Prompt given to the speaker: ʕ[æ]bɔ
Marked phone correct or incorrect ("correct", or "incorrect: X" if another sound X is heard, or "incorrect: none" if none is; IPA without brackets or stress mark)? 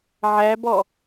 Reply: correct